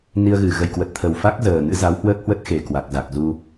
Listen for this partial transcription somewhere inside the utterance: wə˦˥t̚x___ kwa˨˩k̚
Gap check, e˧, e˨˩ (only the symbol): e˨˩